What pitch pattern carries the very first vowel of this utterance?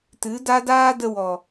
rising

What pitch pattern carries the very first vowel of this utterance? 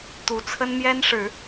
rising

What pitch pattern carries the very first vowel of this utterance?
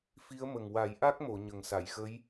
rising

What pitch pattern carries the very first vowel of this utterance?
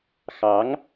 rising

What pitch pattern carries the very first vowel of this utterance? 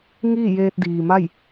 falling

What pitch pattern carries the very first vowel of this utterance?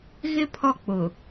high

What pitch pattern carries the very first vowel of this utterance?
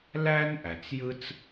high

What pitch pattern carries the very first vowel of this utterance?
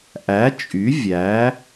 rising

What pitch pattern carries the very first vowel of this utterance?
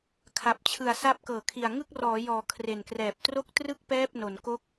low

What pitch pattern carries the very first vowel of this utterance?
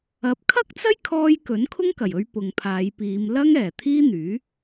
rising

